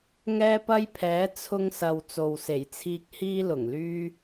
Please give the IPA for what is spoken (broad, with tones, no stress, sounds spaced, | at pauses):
ŋ ɛː˧ p ɐ˧ j pʰ ɛː˨˧ t͡sʰ ʊ˧ ŋ s ɐ˨ w t͡s o˨ w s e˨˩ j t͡sʰ iː˧ k̚ h iː˧ l ʊ˨˩ ŋ l yː˧